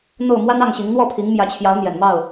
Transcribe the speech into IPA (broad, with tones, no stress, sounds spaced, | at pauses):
n̪ o˥˨ ʊ̯ m w a˦ n ɑ˥˨ ŋ ɕ i˨˦ ŋ n̪ w ɔ˥˨ pʰ i˨˦ ŋ m j ä˨˦ t͡ɕʰ j ɑ˨˦ ʊ̯ n̪ j ɛ˨˩ n m ɑ˥˨ ʊ̯